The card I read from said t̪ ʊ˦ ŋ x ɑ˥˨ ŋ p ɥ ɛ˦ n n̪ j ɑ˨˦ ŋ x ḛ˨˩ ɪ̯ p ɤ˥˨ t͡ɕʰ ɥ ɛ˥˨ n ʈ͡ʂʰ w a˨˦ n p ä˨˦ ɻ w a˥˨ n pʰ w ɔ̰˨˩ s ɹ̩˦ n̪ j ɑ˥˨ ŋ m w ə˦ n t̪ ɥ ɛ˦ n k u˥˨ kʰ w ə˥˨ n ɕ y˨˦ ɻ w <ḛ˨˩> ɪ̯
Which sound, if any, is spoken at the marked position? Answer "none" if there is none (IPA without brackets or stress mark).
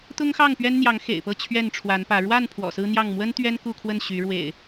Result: ḛ˨˩